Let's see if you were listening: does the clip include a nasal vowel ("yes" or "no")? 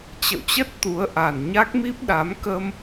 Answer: no